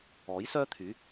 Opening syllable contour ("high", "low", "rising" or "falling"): rising